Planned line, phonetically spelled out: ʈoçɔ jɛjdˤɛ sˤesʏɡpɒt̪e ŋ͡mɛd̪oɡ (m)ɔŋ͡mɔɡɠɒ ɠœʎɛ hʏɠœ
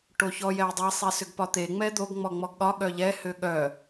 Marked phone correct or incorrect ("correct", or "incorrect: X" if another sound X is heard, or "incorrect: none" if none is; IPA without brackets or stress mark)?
incorrect: ŋ͡m